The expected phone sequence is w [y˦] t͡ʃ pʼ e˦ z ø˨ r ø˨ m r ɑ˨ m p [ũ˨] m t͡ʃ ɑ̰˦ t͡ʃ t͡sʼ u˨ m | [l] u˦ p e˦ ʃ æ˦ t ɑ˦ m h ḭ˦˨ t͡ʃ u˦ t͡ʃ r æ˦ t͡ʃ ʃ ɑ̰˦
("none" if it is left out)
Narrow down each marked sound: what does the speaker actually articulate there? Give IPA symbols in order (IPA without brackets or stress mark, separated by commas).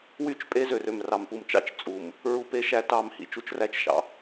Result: y˦, u˨, ɹ